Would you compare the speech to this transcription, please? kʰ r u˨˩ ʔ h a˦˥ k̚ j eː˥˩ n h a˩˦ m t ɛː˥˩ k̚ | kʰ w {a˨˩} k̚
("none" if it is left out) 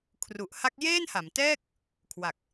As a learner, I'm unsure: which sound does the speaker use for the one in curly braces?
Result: a˨˩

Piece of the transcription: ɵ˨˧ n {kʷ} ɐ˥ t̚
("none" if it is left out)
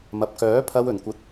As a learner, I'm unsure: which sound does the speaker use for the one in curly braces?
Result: kʷ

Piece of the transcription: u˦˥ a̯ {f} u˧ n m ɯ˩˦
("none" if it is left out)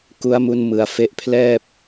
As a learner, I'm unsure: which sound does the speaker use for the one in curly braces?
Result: m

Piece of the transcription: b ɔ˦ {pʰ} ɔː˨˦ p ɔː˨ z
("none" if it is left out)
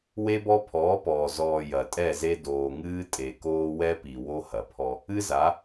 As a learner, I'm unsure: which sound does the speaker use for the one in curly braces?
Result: pʰ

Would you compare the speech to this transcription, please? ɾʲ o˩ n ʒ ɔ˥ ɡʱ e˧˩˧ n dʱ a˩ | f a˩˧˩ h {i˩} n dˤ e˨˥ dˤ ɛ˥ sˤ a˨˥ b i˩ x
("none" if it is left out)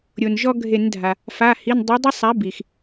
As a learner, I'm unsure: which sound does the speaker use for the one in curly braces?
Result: i˩˧˩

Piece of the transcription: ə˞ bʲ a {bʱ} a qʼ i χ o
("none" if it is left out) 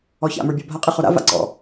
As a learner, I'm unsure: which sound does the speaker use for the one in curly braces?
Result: bʱ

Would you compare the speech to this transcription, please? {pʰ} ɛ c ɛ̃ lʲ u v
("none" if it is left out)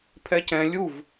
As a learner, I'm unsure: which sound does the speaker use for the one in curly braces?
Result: pʰ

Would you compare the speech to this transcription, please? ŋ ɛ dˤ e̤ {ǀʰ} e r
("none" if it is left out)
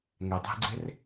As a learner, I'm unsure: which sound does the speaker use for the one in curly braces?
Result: ɡ͡ǀ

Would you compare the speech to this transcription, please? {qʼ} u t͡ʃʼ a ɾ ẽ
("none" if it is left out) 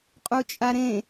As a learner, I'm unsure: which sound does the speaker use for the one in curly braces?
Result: qʼ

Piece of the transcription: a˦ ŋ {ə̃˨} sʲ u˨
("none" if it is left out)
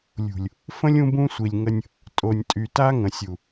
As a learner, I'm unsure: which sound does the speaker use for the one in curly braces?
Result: ə̃˨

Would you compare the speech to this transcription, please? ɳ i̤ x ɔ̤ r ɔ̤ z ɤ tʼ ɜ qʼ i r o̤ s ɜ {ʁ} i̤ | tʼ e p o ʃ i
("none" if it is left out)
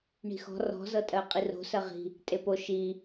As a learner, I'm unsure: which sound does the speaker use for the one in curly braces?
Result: ʁ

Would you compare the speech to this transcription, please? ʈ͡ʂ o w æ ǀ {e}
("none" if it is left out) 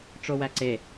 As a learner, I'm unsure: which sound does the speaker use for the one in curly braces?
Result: e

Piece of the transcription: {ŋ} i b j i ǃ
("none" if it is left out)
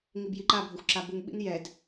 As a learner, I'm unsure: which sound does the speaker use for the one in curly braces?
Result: ŋ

